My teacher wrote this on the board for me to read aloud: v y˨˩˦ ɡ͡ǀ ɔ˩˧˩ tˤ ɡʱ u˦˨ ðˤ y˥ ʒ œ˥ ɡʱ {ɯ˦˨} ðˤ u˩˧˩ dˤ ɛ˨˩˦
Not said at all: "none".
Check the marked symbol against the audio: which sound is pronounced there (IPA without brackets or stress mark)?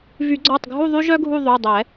u˦˨